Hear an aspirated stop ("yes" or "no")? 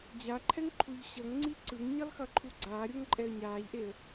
yes